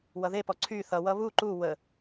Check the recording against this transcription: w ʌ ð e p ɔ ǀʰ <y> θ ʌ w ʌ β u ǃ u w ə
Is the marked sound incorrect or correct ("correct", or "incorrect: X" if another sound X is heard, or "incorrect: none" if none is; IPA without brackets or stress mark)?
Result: correct